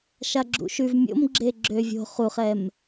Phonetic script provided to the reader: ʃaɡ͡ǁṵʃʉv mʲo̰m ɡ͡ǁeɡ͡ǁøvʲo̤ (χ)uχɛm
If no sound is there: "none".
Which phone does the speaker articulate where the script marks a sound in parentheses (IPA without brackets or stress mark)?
χ